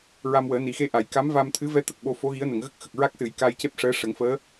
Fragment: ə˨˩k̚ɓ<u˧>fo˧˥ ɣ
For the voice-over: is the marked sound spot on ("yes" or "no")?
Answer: no